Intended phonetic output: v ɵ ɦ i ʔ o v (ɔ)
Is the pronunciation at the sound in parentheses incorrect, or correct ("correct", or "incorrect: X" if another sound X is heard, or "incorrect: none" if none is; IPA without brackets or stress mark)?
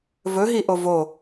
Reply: incorrect: o